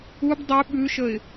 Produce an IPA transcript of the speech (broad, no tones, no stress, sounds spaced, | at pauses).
u b dˤ ʉ ɓ ʉ ʃ ə ɪ̯